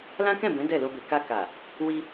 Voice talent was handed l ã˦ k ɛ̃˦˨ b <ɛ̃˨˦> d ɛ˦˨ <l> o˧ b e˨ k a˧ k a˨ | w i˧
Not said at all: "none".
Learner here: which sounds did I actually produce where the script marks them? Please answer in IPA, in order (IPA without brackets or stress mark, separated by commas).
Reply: ɛ̃˨˦, l